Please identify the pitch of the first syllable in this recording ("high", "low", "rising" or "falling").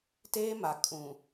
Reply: high